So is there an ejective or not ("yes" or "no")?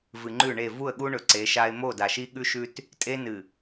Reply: yes